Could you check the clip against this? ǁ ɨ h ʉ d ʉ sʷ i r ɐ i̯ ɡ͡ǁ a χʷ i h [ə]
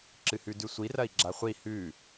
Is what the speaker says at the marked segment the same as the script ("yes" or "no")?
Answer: no